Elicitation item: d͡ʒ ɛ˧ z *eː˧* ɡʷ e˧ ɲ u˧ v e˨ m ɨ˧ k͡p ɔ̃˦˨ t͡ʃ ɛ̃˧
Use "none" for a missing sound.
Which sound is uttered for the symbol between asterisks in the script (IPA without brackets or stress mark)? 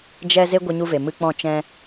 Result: e˧